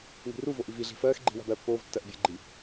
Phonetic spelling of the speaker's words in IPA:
ŋ i̤ r u v o ʔ i v i ɮ i̤ f ɜː x ɡ͡ǃ i̤ w a̤ b ɜː pː oː v tː ɜ ʔ bʲ ə ɡ͡ǃ i

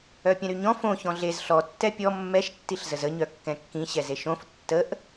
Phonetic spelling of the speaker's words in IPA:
œ pʲ ɛ̃ ɾ y ɲ ɔ̃ f õ ç ɔ̃ ɮ e z ɬ ɔ tː ɛ pʲ ɔ mː ɛ ʃ tː i ɬ z ə z ə ɲ œ kː ɛ̃ kː ĩ ɕ ɛ z e ʃ õ f tː ə ʔ

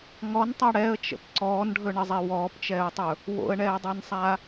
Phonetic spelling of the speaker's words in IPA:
ŋ ɔ n tˤ a ɽ ɛ ə̯ t͡ʃ ə̰ p ǀ ɔː n ɖʱ ɵ ɳ ə zˤ e w ɔː p t͡ʃ ɛː ʊ̯ tˤ ɵ | w o̰ ə̯ ɳ ɛː dˤ ɛ n sˤ a

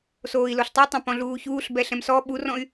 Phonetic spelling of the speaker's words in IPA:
s oː i̯ l o ɬ tˤ i tˤ ã p ɔ̃ ɮ uː ç uː ɬ b ɛ ɬ ɛ̃ m s ɔ ɓ u r ɔ̃ y̯

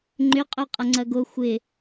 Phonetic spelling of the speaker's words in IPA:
ŋ͡ǃ ʏ qʼ ø qʼ ɐ ŋ͡ǀ ɐ ɡ o xʷ ɪ

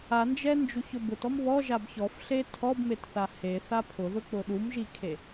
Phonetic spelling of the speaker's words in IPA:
a n d͡ʒ ɛ n d͡ʒ u ç ʊ b ʊ t ɔ m β ɔ ʒ a b ç ɔ f ɬ e tʰ ɔ b m e t θ a h e θ a pʰ ʊ ð ʊ k͡p ʊ ɗ u m ʒ i kʰ e

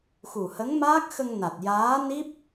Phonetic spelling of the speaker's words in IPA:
x u˨˩ h ə˧˥ ŋ m aː˦˥ k̚ x ə˧ ŋ n a˨˩ t̚ j aː˧˥ n i˦˥ p̚

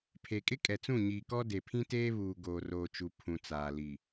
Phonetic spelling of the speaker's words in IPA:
pʰ e˨ kʼ ɪ˦ kʼ ɛ˨ t͡s ũ˦˨ ɲ iː˨ k ɔ˦ d e˨ pʰ ĩ˦ t eː˦ β uː˨ ɡ oː˨ r oː˨ t͡ʃ u˨ pʰ ũ˨ t͡s aː˨ l i˨

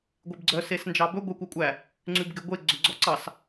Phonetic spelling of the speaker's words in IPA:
ɡʷ e b ɡ͡ǀ œ s e s n d͡ʒ ɑ b ɵ ɡʷ e kʷ æ kʷʼ æ | ŋ͡ǀ ʉ b ɡ e ɡʷ e ɡ͡ǀ ɵ ɡ͡ǀ ɔ ǀ ɑ s

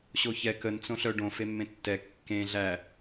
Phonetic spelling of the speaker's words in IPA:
ɕ o ç ɛ k ə n t͡s õ ɬ œ ɖ õ f e mː ẽ tː ɛ kː ẽ ɮ æ

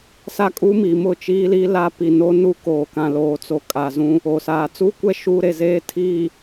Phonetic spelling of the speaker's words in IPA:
s a˦ kʼ uː˦ m i˨ m ʊ˦˨ t͡ʃ iː˦ l i˦ l a˦ p i˨ n o˦ n u˦ k oː˨ k ã˨ l oː˨ t͡s o˨ kʼ aː˨ z ũ˦ | oː˨ s aː˨ t͡s uː˦ kʷ ɛ˦ ʃ uː˦ ɾ e˨ z eː˦ tʰ iː˨

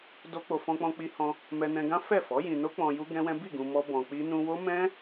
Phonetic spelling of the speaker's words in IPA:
d o˦ k͡p o˧ f ɔ̃˧ k͡p ɔ̃˧ k͡p i˧ h ɔ̃˧ | m ɛ˧ n ɛ̃˧ ɡ ã˦ f ɛ˦˨ f ɔ˨˦ j ĩ˧ n o˦ k͡p ɔ̃˧ j u˦ ɡ ɛ̃˦ w ɛ̃˦ b i˦˨ ɡ ũ˧ m ɔ˦ b ɔ̃˧ k͡p i˦ n ũ˧ w o˦ m ɛ̃˦

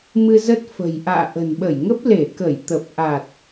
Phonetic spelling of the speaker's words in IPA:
m ɨ˧ z ə˦˥ t̚ f ə̤˨˩ j ʔ a̰ː˧˨ ʔ ə̤˨˩ n ɓ ə˧˩ j ŋ ə˦˥ p̚ l e˧˩ k ə˧˩ j t̪ ə˨˩ p̚ ʔ a˨˩ t̚

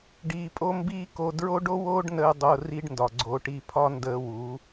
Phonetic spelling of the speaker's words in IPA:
ɖ iː˧ pʼ o˦ m b iː˦ k o˧ d ɹ o˦ ɖ o˦ w oː˦ ɖ n əː˧ dˤ o˧ r i˦ ɖ n d ɒ˨ ɡ͡ǀ o˧ ʈ i˧ pʰ ɒ˦ n d əː˧ w uː˨˦

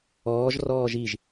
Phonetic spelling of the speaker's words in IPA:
ɔː ʒ r ɔː ʒ i ʒ

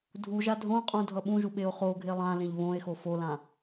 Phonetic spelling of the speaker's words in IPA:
dʱ u ʒ a dʱ õ qʼ ũ dʱ ʌ ɓ ũ ʒ u ɓ e o̯ χ o ɡʱ e lˠ ã l ẽ ʎ β õ e̯ x o f o l ã

